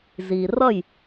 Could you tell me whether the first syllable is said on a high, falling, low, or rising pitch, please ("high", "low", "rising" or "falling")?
low